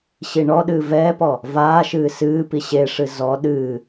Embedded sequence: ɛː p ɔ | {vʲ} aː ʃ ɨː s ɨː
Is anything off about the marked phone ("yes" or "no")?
yes